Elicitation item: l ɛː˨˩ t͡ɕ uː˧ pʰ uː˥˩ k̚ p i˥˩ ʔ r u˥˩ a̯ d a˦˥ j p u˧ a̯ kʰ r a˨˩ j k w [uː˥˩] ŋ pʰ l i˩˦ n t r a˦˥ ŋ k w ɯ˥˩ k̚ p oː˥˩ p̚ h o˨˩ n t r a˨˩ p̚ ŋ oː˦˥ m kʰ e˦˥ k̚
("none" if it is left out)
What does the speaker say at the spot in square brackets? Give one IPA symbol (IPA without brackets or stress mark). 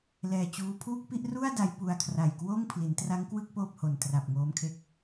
oː˥˩